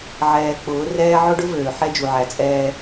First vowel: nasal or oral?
oral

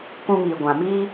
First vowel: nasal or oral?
nasal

